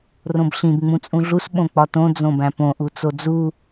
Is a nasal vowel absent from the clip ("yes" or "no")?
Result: no